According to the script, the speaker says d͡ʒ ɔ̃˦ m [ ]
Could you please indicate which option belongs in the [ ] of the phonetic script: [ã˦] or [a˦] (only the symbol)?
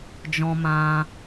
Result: ã˦